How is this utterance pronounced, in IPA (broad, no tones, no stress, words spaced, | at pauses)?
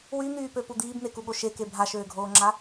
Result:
wyn̪yːpøpu d̪iːbn̪ekuɠo ʃeke bʱaʃøːɡʱoːŋ͡ǁa